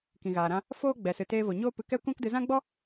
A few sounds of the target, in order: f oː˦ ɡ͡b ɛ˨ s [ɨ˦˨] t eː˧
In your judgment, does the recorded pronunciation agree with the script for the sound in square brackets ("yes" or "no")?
no